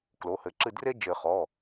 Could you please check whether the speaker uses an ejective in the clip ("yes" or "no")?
no